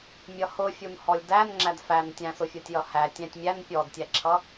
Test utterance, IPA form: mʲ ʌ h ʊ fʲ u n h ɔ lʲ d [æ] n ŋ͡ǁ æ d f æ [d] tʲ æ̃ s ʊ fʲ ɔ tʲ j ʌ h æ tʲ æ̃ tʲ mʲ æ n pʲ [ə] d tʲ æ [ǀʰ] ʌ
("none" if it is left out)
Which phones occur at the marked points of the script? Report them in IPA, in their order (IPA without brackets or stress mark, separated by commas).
æ, n, ɔ, ǁʰ